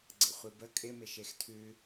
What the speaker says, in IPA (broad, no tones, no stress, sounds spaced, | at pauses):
ɡ͡ǀ ə̰ χʷ i b ə kʼ ɪ m ɪ ʃ e x tʰ ʉ